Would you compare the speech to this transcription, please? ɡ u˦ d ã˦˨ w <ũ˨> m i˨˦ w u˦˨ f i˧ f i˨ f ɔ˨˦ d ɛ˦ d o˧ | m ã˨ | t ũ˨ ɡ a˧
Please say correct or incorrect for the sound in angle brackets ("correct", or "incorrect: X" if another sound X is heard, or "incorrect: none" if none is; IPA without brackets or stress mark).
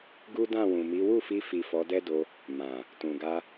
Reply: correct